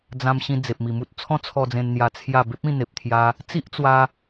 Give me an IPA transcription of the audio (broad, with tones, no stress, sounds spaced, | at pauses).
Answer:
d͡z ã˧ m ɕ ĩ˧ d͡z e˨ p̚ m i˨˩ m u˦ t̚ t͡sʰ ɔ̃˦ t͡sʰ ɔ˧ d͡z ẽ˧ n n̪ j a˧ t͡sʰ j a˥˧ b e˦ p̚ ĩ˥˧ n̪ e˨ p̚ t̪ʰ j a˧ | t͡s i˦ ʔ t͡s w a˧